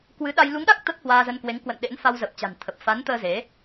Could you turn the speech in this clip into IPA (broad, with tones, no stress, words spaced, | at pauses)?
kwɨ˨˦ɗa˧j lu˨˦ŋɗa˦˥k̚ t̪ə˦˥t̚hwaː˧zə˧nkwe˨˦ŋ kwə̰˧˨nɗḛ˧˥nfa˧w zə˨˩p̚t͡ɕa̤˨˩nt̪ʰə˨˩p̚ fa˨˦nt̪əː˧ ze˨˦